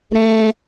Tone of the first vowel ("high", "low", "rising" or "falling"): low